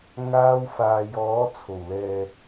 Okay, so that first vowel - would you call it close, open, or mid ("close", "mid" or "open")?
open